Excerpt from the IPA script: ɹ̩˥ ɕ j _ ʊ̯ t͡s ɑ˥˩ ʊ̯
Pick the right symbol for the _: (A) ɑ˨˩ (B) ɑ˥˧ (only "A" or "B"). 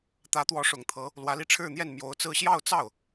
B